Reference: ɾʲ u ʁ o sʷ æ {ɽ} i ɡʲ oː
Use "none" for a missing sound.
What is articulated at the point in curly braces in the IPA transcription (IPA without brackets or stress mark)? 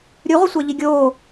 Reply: ʎ